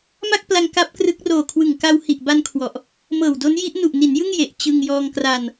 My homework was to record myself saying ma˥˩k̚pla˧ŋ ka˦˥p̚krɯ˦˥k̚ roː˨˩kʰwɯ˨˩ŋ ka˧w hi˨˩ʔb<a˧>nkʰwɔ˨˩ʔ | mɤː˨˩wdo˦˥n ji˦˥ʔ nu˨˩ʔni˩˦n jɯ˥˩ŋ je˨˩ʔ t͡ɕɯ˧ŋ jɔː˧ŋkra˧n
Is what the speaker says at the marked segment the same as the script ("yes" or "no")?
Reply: yes